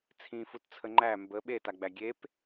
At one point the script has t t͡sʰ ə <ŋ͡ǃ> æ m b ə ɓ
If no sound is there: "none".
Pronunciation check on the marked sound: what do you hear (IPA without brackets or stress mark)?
ŋ͡ǃ